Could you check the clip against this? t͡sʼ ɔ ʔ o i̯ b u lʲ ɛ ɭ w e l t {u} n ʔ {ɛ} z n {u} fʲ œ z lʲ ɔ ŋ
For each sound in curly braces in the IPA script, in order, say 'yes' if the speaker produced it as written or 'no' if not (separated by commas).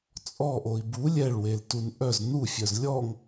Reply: yes, no, yes